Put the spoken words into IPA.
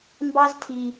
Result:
m b ɑ˦ z tʰ i˧

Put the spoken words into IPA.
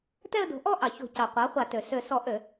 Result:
t ɛ˥˧ ə̯ d o̤˩˥ ʔ ɔ˥˧ ʔ ɑ˩ ç o̤˧˩˧ c ɑ˩ qʷ ɑ˩˥ χʷ a˧˩˧ t ø˩ s ø˧˩˧ s ɔ˧˩˧ ʔ ø˧˩˧

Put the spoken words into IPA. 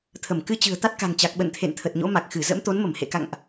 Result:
t̪ʰ ə˧˩ m k ɨ˧ t͡ɕ ɨ̤˨˩ ə̯ t̪ a˦˥ t̚ k a̤˨˩ ŋ t͡ɕ a˨˩ k̚ ɓ ə̰˧˨ n t̪ʰ ḛ˧˨ n t̪ʰ ə˨˩ t̚ ɲ o̰˧˥ m a˨˩ k̚ x ɨ˧˩ z ə̰˧˥ m t̪ o˨˦ n m ə˧˩ m h ḛ˧˨ k a̰˧˨ ŋ ʔ

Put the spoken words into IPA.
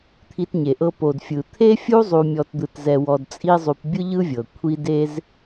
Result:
t̪ʰ i˧ t ɲ e˨ ʔ ɤ˧ p o˨ d fʲ ɯ˨ t̪ʰ e˦ fʲ u˦ zˤ u˧ mʲ ɔ˧ t d̪ ɯ˧ t z ɛ˧ w ɔ˧ d t͡sʼ i˦ zˤ u˧ p bʲ ɯ˦ ʎ ɯ˦ vʲ ɤ˨ kʷʰ i˦ d e˦ z

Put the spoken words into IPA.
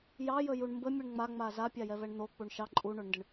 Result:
j ɑ j ə j u ɳ m b ə mʲ u ɳ ŋ͡m a ŋ͡m a z a pʲ a j ɛ v ɛ ɳ n̪ o k͡p u ɳ ʃ ɑ ǃʼ u ɳ o ɳ n d ə ɳ

